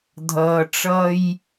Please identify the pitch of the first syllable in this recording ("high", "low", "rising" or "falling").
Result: low